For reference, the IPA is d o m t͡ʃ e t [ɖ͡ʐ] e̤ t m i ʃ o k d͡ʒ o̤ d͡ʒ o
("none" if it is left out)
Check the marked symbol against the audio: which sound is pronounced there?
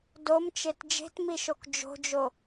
d͡ʒ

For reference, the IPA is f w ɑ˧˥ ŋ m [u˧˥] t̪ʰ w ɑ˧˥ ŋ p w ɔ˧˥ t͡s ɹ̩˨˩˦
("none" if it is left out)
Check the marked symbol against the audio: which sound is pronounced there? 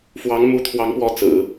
u˧˥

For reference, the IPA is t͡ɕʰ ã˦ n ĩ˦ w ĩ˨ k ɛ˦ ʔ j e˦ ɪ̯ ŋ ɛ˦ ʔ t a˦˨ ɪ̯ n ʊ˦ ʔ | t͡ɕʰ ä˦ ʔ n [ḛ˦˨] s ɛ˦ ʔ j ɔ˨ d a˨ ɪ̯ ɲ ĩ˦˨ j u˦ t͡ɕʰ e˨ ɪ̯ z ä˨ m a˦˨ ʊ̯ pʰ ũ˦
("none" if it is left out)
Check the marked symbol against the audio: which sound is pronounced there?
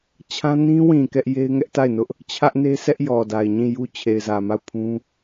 e˦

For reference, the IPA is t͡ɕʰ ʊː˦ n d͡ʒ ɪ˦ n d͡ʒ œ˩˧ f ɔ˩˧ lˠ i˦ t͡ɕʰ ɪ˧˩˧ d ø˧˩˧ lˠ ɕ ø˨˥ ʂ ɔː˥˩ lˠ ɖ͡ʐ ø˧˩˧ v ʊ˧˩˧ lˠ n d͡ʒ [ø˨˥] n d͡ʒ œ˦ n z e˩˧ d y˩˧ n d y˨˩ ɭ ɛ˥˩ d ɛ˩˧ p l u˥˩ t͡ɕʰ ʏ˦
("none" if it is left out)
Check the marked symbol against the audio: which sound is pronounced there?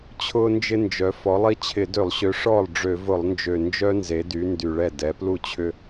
ø˨˩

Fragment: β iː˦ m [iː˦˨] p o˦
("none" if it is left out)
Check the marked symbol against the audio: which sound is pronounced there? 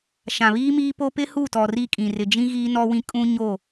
iː˦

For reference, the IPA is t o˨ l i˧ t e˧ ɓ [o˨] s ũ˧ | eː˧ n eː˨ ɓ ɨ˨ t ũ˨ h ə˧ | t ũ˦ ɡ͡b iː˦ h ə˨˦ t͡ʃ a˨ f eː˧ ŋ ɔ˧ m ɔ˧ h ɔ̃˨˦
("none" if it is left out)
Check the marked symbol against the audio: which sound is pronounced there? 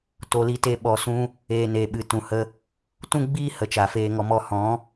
ɔ˨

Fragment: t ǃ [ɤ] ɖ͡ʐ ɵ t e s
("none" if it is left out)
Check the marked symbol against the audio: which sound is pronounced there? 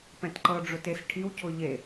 ɤ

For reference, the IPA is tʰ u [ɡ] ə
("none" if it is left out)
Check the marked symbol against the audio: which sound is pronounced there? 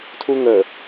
ŋ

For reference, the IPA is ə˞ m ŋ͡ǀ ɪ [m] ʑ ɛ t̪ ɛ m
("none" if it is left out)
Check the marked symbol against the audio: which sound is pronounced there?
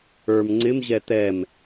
m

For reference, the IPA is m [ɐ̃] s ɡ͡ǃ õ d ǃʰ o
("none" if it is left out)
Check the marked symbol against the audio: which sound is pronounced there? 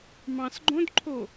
ɑ̃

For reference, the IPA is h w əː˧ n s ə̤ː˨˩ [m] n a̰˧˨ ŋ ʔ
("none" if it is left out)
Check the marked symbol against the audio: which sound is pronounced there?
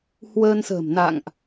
m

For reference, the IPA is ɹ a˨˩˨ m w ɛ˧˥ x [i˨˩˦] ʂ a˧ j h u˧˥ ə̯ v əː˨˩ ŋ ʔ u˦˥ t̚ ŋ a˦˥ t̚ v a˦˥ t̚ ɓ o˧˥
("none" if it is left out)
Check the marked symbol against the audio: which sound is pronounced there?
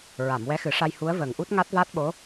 ɨ˨˩˦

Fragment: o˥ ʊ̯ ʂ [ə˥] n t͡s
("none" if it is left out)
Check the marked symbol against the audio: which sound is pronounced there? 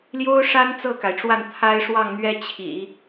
a˥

